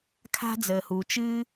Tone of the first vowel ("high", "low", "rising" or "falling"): high